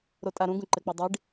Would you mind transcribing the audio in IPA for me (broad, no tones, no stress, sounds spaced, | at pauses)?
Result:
ɾ o tʼ a ɾ ũ ɡ ũ ǃ ɘ k͡p ɛ dˤ i ɖ